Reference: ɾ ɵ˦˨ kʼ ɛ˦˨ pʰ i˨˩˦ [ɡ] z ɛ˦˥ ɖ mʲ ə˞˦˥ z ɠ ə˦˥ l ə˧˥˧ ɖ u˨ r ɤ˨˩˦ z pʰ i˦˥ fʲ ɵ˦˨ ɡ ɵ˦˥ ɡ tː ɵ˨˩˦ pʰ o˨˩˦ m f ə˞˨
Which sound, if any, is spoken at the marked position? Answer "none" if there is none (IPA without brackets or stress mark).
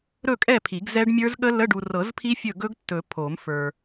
ɡ